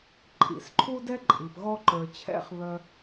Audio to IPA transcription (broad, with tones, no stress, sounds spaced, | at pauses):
ǃʼ ḭ˩ s ǃʰ u˥ d ɛ˥ ǃʼ i˩ p ɣ ɔ˧ ǃ ə˞˩ t͡ɕʰ ɛ̰˧ χ β œ˧